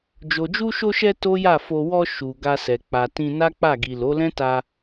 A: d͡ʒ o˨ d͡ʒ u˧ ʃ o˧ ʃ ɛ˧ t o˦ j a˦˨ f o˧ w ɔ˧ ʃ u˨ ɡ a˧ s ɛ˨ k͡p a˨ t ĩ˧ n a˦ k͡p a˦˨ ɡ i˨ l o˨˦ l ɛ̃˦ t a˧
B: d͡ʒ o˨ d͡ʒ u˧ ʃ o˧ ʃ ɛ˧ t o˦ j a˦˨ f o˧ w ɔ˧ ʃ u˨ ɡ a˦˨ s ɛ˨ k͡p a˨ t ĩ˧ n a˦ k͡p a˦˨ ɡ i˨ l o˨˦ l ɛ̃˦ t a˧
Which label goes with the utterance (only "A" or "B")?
A